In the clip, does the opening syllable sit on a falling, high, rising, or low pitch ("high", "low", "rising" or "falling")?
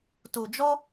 low